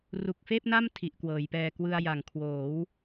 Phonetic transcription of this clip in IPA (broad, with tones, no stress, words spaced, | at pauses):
ru˨˩k̚feː˥˩p̚na˥˩m tʰi˨˩ʔkwɤː˩˦jpɛː˧ kwɯ˧a̯ja˨˩ŋ kʰwoː˩˦w